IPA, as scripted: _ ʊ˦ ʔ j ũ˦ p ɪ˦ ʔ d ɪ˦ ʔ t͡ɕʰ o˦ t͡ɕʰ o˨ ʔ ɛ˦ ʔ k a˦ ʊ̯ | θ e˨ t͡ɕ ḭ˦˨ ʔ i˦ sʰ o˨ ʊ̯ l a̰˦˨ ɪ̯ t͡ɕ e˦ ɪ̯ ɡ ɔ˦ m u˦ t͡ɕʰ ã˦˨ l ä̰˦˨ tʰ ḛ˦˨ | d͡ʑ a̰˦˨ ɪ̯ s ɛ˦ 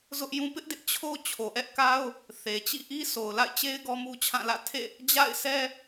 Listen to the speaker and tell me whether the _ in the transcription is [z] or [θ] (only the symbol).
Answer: z